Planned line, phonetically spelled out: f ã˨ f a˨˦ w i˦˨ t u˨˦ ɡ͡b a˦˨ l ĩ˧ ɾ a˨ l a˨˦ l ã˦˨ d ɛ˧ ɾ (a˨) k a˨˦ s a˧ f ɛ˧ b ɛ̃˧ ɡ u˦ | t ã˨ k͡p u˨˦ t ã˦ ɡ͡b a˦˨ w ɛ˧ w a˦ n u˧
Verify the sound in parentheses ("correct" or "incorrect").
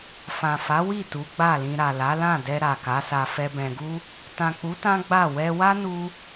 correct